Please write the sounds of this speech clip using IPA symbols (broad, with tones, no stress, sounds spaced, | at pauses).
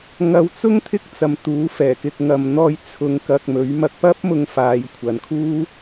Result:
ŋ ɐ˨˧ w t͡s ʊ˥ ŋ t̪ʰ ɪ˥ k̚ t͡s ɐ˨ m t̪ uː˨˥ f ɛː˨˩ k ɪ˨ k̚ ŋ ɐ˨ m n̪ ɔː˧ j t͡sʰ ʊ˨˧ ŋ k ɐ˨ k̚ m ɵ˨˥ ɥ m ɐ˧ k̚ p ɐ˥ p̚ m ʊ˧ ŋ f aː˨˧ j kʷʰ ɐ˨ n kʰ uː˥